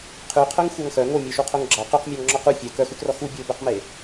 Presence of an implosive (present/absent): absent